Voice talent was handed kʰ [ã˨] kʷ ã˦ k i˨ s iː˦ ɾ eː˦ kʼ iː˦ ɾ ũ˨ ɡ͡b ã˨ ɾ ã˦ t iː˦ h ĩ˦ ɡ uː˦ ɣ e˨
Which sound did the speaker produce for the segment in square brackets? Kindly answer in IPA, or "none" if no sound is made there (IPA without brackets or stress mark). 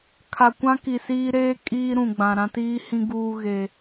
a˨